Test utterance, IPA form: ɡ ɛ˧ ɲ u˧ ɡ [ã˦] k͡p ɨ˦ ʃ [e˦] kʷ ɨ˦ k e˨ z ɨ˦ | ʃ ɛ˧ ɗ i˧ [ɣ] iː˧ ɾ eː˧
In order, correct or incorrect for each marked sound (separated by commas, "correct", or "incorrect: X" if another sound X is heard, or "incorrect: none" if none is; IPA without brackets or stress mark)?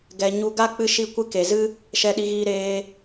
incorrect: a˦, incorrect: i˦, correct